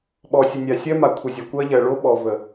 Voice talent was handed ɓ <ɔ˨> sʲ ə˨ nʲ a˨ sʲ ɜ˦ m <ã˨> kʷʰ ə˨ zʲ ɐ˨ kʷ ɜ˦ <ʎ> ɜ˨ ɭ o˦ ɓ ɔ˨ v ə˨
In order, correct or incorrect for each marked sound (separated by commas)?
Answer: correct, incorrect, correct